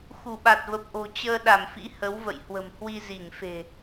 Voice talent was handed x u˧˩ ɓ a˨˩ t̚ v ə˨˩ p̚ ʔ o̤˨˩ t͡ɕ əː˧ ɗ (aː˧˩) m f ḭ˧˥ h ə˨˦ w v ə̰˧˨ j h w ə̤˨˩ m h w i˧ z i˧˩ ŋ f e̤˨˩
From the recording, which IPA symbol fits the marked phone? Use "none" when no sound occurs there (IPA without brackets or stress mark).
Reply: a˧˩